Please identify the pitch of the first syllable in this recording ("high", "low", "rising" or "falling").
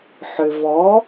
low